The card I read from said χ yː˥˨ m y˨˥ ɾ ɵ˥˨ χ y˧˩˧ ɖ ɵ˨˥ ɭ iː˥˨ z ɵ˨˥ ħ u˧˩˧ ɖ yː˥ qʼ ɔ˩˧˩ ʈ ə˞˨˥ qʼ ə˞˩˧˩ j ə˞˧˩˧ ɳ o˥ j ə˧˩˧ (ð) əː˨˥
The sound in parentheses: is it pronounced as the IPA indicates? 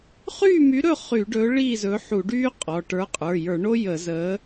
no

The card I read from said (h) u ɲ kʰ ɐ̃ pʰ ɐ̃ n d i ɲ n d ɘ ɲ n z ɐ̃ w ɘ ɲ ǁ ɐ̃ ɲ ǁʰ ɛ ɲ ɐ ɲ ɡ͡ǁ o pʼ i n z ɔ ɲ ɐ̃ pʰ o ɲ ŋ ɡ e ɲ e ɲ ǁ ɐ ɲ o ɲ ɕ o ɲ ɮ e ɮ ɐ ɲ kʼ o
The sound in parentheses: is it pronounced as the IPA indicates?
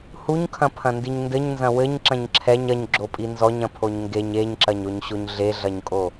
yes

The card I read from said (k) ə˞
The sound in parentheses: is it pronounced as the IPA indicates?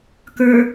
yes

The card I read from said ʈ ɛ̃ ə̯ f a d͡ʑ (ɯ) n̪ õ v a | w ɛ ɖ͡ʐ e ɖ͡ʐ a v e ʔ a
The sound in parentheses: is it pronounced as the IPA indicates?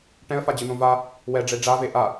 yes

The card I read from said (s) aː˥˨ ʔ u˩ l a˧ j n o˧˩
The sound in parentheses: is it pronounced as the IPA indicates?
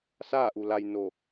yes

